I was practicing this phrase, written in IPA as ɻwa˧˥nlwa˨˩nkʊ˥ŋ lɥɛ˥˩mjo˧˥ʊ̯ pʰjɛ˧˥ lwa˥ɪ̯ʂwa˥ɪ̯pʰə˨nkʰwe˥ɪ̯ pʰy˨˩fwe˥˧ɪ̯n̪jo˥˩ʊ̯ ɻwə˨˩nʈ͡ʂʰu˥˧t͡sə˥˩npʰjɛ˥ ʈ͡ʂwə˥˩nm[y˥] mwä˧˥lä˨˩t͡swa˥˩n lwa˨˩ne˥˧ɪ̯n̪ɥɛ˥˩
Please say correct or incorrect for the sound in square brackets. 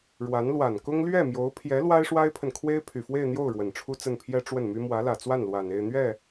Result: correct